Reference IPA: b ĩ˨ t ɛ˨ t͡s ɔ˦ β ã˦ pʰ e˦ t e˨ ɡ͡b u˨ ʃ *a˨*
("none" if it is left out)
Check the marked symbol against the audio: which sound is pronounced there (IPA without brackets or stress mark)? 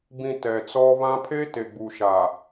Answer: a˨